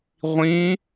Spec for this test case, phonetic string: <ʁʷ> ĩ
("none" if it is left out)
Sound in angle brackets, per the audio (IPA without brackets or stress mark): ʁʷ